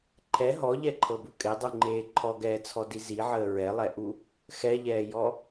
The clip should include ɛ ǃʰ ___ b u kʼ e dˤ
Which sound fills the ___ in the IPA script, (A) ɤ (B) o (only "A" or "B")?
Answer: A